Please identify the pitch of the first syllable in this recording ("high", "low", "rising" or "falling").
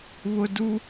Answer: high